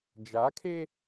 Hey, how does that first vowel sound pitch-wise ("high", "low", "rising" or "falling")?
rising